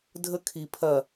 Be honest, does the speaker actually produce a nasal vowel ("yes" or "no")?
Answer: no